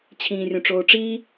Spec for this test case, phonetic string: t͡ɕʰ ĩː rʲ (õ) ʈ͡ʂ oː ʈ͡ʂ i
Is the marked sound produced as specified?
yes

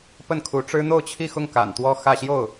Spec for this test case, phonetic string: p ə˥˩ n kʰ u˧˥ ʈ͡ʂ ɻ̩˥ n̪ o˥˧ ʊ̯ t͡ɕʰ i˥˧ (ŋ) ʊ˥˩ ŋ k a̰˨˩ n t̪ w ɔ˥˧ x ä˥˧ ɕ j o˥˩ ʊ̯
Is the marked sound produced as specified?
no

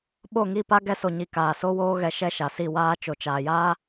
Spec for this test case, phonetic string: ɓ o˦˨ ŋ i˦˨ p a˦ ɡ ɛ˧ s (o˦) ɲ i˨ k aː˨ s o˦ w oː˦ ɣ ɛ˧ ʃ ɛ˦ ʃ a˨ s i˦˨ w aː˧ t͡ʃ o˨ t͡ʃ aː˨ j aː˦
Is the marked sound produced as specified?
no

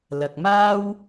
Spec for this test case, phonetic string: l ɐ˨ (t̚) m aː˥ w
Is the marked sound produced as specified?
no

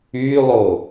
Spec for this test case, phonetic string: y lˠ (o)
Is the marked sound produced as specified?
yes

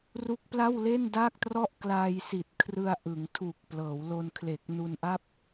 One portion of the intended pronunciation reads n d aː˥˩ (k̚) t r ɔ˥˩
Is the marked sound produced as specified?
yes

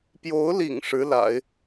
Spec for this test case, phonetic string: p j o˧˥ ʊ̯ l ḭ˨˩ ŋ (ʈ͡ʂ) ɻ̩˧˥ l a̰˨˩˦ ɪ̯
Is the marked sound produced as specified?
no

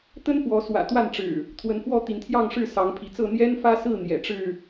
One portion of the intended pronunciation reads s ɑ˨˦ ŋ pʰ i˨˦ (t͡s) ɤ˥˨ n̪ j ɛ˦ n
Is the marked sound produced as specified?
yes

